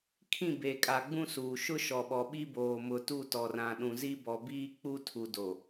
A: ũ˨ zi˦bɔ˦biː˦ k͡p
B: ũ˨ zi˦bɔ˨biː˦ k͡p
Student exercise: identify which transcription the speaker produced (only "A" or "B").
B